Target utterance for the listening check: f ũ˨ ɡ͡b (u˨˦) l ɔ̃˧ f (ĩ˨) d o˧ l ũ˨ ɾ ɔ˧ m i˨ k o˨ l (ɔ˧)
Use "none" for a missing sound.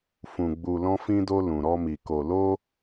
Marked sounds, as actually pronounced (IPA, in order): u˨, ĩ˧, o˧

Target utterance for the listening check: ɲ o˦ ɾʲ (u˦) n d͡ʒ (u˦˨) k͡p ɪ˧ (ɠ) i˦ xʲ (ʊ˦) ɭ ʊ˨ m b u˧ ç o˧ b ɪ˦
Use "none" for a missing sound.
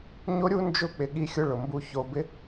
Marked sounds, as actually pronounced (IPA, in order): u˦, ʊ˦˨, ɠ, ʊ˦

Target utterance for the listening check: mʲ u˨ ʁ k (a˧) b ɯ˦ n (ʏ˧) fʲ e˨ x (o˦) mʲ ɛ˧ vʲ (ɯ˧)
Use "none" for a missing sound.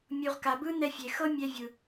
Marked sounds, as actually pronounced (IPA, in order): a˨, ɛ˧, ɤ˦, ɯ˨

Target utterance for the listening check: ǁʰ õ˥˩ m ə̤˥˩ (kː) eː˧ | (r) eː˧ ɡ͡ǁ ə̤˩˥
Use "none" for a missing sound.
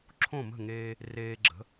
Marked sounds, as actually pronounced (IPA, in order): ŋ, r

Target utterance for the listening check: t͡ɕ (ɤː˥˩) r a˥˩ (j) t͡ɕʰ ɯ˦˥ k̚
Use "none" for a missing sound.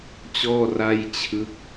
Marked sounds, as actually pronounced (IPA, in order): ɔː˥˩, j

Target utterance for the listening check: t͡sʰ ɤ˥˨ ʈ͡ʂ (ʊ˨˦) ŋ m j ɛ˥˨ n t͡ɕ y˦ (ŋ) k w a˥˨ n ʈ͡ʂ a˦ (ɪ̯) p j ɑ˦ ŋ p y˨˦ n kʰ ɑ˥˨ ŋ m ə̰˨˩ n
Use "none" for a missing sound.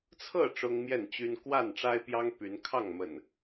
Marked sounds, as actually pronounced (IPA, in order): ʊ˦, n, ɪ̯

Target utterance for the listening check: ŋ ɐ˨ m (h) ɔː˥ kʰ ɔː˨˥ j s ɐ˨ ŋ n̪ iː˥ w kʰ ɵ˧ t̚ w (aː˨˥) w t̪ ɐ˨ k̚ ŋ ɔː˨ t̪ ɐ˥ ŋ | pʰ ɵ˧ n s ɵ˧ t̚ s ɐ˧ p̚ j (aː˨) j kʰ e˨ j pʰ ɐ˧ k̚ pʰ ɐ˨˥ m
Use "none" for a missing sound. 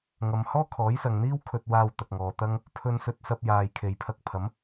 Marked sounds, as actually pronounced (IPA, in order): h, aː˧, aː˨

